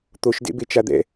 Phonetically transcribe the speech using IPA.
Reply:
t̪ o ʃ d ḛ b e t͡ʃ a d̪ ɛ̰

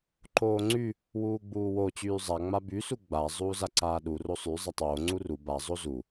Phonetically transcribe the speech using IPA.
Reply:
ǃ oː ŋ͡ǀ y | w uː ɡ͡b uː w o t͡ɕ yː zˤ a ŋ͡m a b y s u ɡ͡b a zˤ uː z a ǀ aː ɗ u r o sˤ y zˤ a tˤ oː ŋ͡ǀ u r u b a zˤ o z u

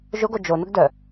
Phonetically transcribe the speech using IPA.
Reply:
ʒ ʊ ɡ o d͡ʒ o n ʊ ɡ d œ

